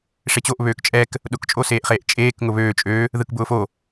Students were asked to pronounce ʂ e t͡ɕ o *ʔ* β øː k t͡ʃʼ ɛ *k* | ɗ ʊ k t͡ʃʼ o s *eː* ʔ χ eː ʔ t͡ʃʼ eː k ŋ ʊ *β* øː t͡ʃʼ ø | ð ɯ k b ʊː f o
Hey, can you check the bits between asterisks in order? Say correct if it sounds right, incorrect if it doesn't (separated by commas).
correct, correct, correct, correct